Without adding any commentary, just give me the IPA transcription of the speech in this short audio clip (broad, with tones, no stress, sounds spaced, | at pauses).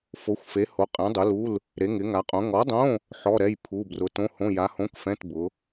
f o˨˥ xʷ f e˨˥ h o˨˥ qʼ ɛ̃˨˥ dˤ ʊ˨˥ l u˧˥˧ l | ɾ e˨˥ ŋ ɪ˨˥ ŋ a˨˥ qʼ õ˨˥ ŋ ɔ˨˥ dˤ õ˧˥˧ | ħ ɔ˧˥˧ ɾ ɛ˧˥˧ j pʰ u˧˥˧ b r ʊ˨˥ t õ˧˥˧ h õ˧˥˧ j a˨˥ h õ˧˥˧ k f ɛ̃˧˥˧ t b ʊ˨˥